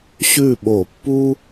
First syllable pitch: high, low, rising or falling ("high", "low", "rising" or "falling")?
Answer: falling